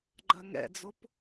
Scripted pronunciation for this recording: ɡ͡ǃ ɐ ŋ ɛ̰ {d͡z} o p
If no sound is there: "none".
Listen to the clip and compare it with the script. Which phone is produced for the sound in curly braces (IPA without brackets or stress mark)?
d͡z